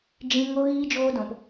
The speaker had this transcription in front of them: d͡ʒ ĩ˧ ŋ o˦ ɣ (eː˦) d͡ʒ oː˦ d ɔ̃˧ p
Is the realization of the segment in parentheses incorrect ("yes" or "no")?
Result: yes